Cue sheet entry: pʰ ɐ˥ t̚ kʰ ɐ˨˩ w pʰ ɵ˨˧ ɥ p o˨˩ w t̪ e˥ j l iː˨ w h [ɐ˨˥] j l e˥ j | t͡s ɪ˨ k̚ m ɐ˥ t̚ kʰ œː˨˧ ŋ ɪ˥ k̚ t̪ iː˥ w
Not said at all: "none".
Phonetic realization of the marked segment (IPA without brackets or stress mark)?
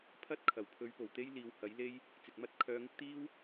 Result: ɐ˨˥